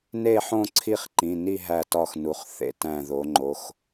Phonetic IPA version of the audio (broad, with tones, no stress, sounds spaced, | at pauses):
n e˥˧ ħ õ˥˧ ǀʰ i˥˧ χ ǃ ĩ˩˧˩ n i˥˧ ɦ æ˧˩ t ɒ˧˩ x n u˩˧ χ θ ḛ˩˧ t æ̃˧˩ ð o˩˧ ŋ͡ǃ o˩˧˩ x